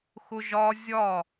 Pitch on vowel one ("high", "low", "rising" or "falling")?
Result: high